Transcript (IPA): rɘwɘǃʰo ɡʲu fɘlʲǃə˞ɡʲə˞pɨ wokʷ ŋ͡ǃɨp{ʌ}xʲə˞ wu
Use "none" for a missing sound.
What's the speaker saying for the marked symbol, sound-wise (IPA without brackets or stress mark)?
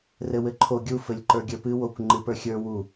ə˞